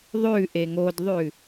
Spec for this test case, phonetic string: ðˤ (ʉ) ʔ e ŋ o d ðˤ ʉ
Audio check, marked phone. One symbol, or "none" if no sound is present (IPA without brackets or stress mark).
ʉ